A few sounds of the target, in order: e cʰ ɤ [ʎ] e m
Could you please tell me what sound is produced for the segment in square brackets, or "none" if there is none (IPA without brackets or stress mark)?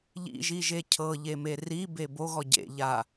ʎ